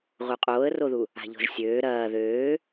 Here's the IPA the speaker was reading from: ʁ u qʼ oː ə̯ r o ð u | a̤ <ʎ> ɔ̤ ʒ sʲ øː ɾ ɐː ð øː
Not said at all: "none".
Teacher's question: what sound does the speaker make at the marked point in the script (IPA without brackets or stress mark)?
ʎ